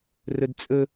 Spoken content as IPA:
r ɵ d t͡sʼ ɵ

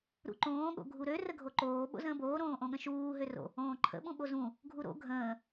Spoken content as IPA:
ɾ ṵ ǃ õː ɠ o̰ ɡʱ u ɾ ø r ə ɡʱ o ǃ oː ɓ o̰ z ə̃ː b oː ɾ õː ʔ õ ɠ ə̃ ʃ uː ɦ ø r o̰ | õː ǃʰ ə̰ ɓ ũ ɓ o z ũ | ɡʱ u ɾ o̰ ɡʱ ə̃ː

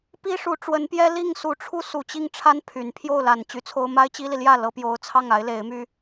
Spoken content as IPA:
p i˥ ʂ u˧˥ ʈ͡ʂ w ə˧˥ n p j ɛ˥ l i˥˩ ŋ s u˧˥ ʈ͡ʂʰ u˥ s u˨˩ t͡ɕ i˥˩ ŋ ʈ͡ʂʰ a˥ n pʰ y˨˩ n pʰ j o˥˩ ʊ̯ l a˨˩ n t͡ɕ y˧˥ t͡sʰ o˥ ʊ̯ m a˥ ɪ̯ t͡ɕ i˥ l i˨ l j ä˥˩ l ɤ˧˥ p j o˧˥ ʊ̯ t͡sʰ ɑ˥˩ ŋ a˧˥ ɪ̯ l e˧˥ ɪ̯ m y˥

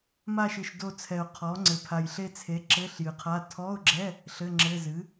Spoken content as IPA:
m a˦˨ ʃ ɨ˨˩ ʃ d o˦˨ t͡sʰ ɛ˨˩ ʊ̯ qʰ ɔ˩˥ ŋ͡ǀ ɘ˨˩ pʰ a˨˩ j ɬ e˦˨ t͡sʰ e˩˥ ǁ ɘ˧˥˧ ɬ j ɨ˨˩ qʰ a˧˥˧ tʰ ɔ˧˥˧ ʊ̯ ɡ͡ǁ ɛ˧˥˧ | ɬ ɘ˧˥˧ ŋ͡ǁ ɘ˧˥˧ z ɨ˩˥

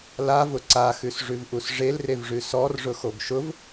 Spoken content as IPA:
l a v ʊ ǀ a x ʉ s ʐ ʉ v ʔ u s ʐ e l r e v ʐ ʉ s ɔ r ʐ ʊ x o ɡ ʃ ʊ v

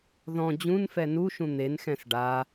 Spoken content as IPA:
ð ɔ̃ d͡ʑ ũ n f ɛ n u ʃ ũ n̪ e n x ɛ̃ s ɖ a

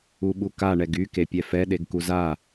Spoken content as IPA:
u ɓ u k a ɳ ɛ ɡ y k e pʲ ɛ f ɛ ɗ e ɡ k u z a

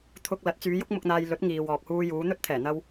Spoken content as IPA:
t̪ʰ ʊ˧ k̚ l ɐ˨˥ t̚ t͡s yː˨˧ j ʊ˥ k̚ m ʊ˧ k̚ n̪ aː˧ j l ɵ˨˥ t̚ ŋ iː˨ w ɔː˨ k̚ h uː˧ j uː˨˧ n̪ ɵ˥ t̚ t̪ʰ ɛː˨˩ n̪ ɐ˧ w

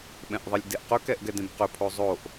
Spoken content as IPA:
ɓ ɛ̃ ʔ ðˤ i lʲ d e ʔ q ɵ k ɛ ʔ ɡ ɛ d ẽ b q ɵ pʰ o zˤ o ʔ

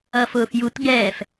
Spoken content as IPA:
ʌ f ʊː f j u t ɡ ɛː f

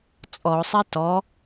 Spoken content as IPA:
t͡sʼ ɔ ʊ̯ sˤ ɛ t ɔ

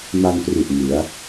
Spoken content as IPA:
m a˧ n p r u˨˩ ʔ ŋ ɯ˩˦ a̯

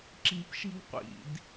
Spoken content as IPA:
ǁ i̤ p ʃ i̤ ɡ qʷ ḭ d

